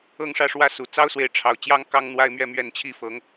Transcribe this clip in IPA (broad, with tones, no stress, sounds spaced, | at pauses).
ɤ˥˧ ŋ ʂ ä˥˧ ʂ w ä˥˩ s u˨˩ t͡s ɑ˥ ʊ̯ s w e˧˥ ɪ̯ ʈ͡ʂʰ ɑ˨˩ ʊ̯ t͡ɕ j ɑ˥ ŋ k ɑ˥ ŋ n̪ w a˥ ɪ̯ m ɥ ɛ˥˧ m ɥ ɛ˥˧ n t͡ɕʰ i˥˩ f ɤ˧˥ ŋ